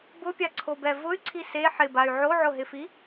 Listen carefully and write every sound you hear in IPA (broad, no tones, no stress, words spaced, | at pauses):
bʊpʲaǀʰobɛ vʊy̯ǀʰi se ħɪbay̯ ʕoʕʊɦɪfi